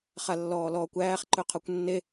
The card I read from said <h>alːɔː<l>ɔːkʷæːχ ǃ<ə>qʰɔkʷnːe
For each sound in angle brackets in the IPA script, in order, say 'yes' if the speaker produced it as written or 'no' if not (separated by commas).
no, yes, no